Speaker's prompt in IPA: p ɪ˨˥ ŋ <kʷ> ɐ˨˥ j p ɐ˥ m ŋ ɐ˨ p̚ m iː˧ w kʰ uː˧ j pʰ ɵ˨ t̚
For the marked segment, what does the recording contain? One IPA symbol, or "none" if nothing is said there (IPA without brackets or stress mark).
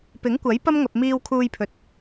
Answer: kʷ